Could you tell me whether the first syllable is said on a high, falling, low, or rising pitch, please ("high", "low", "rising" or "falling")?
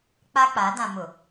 high